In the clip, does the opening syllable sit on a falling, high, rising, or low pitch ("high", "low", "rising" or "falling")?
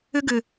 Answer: high